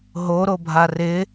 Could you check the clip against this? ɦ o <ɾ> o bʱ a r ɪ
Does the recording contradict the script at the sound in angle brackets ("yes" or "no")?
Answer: no